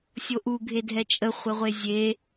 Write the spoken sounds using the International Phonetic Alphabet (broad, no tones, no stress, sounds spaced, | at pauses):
sʲ o ʔ u ɡʱ e dʱ ɛ t͡ʃʼ ə χʷ e ʁʷ e zʲ e